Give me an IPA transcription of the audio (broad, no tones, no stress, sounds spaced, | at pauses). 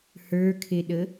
h ə˞ kʰ e ɗ ə